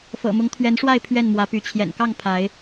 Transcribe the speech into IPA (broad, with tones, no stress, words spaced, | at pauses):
fɤ̰˨˩mʊ˨˦ŋ t̪ʰɥɛ˨˦nʂwa˥˨ɪ̯ pʰɥɛ˥˨nmwä˨˦py˨˦ t͡ɕʰjɛ̰˨˩nkɑ˥˨ŋ pʰa˨˦ɪ̯